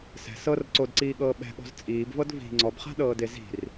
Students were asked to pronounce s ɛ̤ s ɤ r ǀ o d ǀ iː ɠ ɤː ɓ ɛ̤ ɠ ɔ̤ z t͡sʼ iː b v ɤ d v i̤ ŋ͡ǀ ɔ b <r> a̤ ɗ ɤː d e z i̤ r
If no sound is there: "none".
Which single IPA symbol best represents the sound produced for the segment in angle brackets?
χ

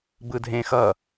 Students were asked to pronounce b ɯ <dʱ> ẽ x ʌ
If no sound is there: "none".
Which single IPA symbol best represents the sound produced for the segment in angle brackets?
dʱ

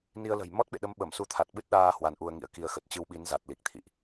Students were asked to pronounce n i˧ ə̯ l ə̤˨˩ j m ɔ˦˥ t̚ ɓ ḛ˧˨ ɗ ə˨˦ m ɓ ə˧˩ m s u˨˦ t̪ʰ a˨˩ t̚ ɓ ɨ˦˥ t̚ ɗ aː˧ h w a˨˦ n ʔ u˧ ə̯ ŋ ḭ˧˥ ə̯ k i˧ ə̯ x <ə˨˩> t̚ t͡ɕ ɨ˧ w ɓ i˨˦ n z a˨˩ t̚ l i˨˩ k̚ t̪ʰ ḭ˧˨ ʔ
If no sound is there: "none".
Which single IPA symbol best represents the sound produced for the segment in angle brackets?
ə˨˩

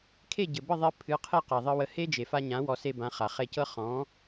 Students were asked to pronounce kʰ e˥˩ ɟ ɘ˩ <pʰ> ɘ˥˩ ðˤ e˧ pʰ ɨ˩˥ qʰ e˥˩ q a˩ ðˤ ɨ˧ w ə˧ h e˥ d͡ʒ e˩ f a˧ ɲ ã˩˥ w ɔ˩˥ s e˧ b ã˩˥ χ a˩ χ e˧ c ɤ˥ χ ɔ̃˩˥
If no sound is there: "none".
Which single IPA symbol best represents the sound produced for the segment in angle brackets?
b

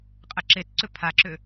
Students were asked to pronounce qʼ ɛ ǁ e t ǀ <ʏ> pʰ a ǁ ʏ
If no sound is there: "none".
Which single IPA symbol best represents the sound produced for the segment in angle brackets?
ʏ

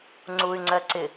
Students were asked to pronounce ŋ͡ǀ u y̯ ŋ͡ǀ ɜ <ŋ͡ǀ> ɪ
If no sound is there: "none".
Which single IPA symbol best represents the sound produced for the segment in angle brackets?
ǀ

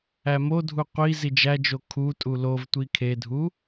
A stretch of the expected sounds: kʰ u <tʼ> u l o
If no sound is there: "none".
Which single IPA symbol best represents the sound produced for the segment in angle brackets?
tʼ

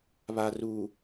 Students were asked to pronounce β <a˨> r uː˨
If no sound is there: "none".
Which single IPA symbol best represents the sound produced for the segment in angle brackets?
a˨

